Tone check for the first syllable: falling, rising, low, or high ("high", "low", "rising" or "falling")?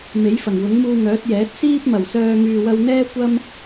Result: rising